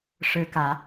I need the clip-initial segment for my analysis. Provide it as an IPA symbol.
ʂ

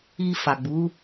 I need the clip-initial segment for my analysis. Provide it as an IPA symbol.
i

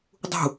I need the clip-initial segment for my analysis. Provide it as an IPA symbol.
dˤ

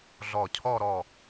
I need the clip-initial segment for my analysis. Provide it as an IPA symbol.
ɮ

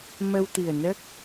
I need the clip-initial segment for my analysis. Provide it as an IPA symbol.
m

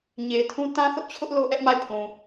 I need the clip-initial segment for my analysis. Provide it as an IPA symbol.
ɲ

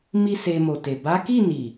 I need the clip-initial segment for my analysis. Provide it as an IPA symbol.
m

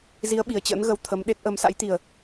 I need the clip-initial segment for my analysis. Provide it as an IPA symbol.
z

